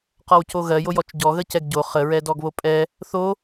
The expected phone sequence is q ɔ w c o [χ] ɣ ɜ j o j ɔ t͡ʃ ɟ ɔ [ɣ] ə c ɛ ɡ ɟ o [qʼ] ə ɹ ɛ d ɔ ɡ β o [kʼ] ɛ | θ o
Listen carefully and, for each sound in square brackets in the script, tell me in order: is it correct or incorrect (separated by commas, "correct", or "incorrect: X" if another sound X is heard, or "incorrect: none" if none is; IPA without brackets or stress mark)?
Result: incorrect: none, correct, incorrect: χ, incorrect: pʼ